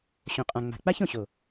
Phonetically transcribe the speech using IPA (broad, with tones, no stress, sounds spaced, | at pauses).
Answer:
ɕ õ˨ qʼ ã˨ ŋ͡m a̤˨ k͡p a˦ ç õ˨ ɕ o˨